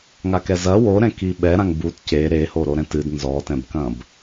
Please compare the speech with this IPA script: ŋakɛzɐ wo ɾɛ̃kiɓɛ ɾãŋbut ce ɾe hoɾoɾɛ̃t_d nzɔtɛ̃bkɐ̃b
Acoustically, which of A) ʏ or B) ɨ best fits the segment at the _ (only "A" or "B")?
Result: B